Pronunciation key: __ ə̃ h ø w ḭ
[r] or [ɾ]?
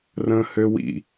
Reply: r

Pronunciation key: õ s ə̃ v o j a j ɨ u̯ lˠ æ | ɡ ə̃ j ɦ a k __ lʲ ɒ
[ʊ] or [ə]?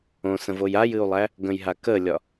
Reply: ə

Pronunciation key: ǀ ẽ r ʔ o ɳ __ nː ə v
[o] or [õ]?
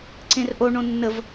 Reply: õ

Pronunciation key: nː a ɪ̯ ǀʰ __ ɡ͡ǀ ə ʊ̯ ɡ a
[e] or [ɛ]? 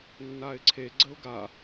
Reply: e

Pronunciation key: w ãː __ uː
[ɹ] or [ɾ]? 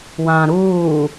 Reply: ɾ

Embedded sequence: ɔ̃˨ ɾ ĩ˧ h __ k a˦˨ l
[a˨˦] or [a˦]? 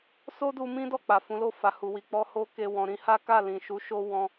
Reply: a˦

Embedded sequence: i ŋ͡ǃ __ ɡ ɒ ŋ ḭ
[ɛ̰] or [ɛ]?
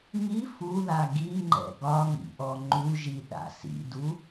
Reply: ɛ̰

